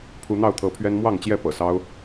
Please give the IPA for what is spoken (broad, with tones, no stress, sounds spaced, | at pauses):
pʰ u˨˦ n̪ ɑ˥˨ ʊ̯ t̪ʰ ɤ˨˦ pʰ ɥ ɛ˦ n m w ɑ˥˨ ŋ t͡ɕ j ɛ˥˨ p ɤ̰˨˩ s ɑ˦ ʊ̯